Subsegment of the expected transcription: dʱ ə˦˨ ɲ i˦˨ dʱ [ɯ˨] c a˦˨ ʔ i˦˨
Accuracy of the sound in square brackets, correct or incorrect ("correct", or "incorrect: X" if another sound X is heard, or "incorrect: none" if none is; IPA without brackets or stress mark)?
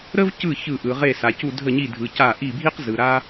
correct